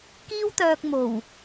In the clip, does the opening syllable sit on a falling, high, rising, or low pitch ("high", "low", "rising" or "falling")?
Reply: high